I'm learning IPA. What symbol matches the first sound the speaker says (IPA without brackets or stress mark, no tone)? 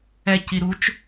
ɛ